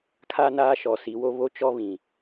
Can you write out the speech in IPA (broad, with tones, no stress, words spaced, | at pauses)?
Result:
kʰa˦naː˦ ʃɔ˨si˨˦wo˦ βo˦t͡ʃɔ˦ βĩ˨